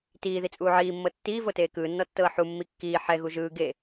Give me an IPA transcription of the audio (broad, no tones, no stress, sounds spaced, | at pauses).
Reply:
t iː ð i t͡sʼ uː ʕ iː mː ɤ tː iː v o t eː k ɯː nː ɔ tː ɤː ħ u mː i kː iː ħ ɛ ɣ u ʒ ɯː ɡ e